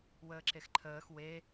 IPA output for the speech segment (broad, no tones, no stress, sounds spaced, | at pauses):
w əː ǁ e x ǃʰ əː x w e